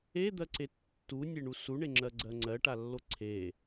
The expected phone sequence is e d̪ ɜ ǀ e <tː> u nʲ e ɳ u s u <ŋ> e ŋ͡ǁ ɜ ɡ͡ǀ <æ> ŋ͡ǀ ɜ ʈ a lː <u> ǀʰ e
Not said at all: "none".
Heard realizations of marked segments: tː, ɳ, ɜ, o

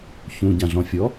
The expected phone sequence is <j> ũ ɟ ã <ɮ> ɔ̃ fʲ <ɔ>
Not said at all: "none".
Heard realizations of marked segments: ç, ɮ, ɔ

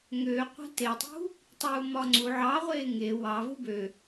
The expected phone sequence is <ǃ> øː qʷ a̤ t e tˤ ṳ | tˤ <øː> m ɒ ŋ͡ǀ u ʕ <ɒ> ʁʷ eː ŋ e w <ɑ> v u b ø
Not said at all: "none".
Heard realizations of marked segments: ŋ, uː, ɑ, ɑ

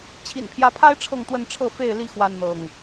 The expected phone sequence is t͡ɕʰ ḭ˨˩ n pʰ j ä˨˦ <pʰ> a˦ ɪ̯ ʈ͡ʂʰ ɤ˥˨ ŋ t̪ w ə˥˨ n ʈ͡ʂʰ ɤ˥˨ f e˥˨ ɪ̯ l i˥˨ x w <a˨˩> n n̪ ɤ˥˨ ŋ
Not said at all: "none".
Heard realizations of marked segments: pʰ, a˦

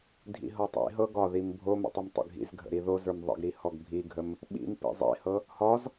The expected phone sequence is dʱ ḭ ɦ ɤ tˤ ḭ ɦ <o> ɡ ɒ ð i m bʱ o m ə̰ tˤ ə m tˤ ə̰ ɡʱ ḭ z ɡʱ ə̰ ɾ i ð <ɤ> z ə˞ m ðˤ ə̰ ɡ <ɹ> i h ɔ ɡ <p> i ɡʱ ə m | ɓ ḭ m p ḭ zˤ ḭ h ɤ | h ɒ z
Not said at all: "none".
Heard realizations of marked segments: ɤ, o, ɾ, bʱ

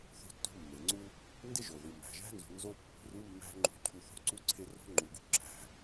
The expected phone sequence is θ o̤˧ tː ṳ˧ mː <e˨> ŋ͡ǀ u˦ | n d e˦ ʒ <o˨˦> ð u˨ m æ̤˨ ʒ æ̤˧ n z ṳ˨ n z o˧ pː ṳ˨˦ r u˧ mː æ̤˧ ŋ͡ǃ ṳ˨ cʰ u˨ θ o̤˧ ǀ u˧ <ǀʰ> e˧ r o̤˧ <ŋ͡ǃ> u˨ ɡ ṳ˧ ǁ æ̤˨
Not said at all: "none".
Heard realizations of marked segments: e˨, o˨, ǀʰ, ŋ͡ǃ

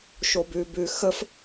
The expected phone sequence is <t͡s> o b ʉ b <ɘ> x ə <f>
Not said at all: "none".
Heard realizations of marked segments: ʃ, ʉ, f

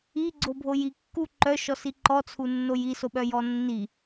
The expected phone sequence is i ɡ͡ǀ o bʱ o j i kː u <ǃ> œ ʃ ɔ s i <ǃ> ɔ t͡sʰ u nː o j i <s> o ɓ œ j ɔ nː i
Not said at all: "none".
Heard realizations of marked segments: ǃ, ǃ, s

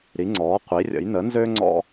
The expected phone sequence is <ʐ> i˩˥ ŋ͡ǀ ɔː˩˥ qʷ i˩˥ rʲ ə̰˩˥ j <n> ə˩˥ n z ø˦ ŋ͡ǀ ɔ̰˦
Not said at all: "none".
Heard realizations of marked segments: ɾ, n

